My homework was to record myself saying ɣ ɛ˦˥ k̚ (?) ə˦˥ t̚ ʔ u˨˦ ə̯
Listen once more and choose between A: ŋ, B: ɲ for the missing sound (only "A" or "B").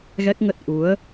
A